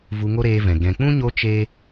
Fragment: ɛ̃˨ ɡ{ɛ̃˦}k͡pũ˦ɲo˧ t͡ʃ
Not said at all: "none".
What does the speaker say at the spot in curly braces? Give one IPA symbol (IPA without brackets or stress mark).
ɛ̃˨